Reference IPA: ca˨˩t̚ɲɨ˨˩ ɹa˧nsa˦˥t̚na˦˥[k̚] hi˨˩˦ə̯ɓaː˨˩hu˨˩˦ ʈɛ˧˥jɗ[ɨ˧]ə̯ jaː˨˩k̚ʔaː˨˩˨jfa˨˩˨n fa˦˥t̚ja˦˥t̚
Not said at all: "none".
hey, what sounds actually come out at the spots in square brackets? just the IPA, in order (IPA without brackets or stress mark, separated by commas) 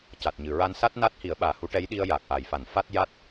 t̚, i˧